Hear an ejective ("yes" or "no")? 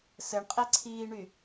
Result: yes